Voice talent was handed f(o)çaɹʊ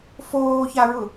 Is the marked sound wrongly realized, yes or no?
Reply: yes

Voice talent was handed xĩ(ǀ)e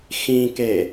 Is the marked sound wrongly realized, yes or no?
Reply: yes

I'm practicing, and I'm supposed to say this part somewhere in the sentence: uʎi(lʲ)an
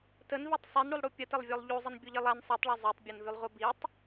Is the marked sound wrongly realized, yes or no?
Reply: yes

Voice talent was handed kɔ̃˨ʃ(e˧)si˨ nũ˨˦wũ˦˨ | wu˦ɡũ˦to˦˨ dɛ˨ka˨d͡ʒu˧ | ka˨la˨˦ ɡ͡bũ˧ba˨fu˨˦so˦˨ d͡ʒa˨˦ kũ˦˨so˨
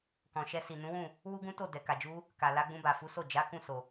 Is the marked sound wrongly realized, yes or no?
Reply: yes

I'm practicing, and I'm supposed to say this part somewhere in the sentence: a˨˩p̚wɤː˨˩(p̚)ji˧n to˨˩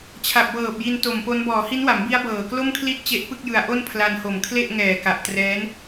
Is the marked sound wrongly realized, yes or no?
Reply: no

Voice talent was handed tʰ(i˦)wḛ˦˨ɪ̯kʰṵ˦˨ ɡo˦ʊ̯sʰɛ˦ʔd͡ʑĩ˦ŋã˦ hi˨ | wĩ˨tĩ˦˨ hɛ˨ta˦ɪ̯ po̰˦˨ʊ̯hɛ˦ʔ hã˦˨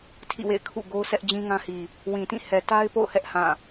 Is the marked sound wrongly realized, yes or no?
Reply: yes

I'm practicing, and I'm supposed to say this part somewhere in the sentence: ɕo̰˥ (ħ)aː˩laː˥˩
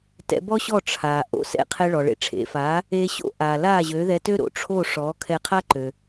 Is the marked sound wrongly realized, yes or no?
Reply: yes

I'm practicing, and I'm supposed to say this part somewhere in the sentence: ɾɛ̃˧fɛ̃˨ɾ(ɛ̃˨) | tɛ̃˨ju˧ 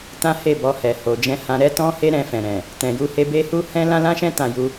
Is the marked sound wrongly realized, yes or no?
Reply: no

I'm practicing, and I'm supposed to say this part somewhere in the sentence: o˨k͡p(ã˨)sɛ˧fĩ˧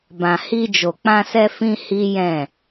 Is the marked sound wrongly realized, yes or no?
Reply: yes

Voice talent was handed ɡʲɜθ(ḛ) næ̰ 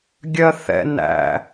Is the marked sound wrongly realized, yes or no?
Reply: yes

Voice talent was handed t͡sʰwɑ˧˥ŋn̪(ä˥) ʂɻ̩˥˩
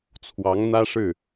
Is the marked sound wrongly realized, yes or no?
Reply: no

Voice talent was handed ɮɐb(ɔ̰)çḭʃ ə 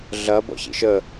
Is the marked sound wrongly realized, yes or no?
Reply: no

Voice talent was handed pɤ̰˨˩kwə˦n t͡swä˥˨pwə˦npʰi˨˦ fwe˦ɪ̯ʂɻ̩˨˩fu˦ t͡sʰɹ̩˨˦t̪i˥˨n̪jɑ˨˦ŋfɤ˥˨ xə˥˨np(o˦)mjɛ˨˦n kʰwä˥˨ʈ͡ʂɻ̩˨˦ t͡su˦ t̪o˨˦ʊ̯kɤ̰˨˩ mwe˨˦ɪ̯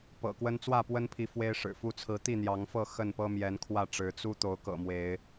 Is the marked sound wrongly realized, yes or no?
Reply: yes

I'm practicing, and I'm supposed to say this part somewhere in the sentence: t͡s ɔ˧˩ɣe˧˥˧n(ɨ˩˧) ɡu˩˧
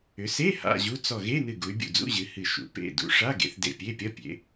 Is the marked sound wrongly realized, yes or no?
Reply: yes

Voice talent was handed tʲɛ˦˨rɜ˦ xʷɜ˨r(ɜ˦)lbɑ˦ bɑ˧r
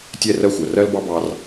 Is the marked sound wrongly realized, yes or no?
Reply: no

